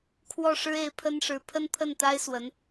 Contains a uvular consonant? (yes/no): no